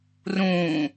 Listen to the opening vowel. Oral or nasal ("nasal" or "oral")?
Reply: nasal